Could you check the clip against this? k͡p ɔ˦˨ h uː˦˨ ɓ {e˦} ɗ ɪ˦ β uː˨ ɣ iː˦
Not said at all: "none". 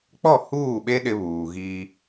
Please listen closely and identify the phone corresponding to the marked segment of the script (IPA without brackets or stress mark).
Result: e˦